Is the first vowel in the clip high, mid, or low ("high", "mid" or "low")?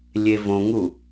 mid